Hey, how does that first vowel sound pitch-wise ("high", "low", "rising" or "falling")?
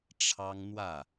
high